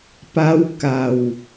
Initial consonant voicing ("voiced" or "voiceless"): voiceless